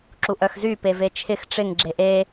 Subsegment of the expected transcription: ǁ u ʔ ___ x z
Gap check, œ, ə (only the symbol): œ